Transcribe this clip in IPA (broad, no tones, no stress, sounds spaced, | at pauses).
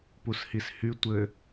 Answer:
p u s h i s h y tʷ ɘ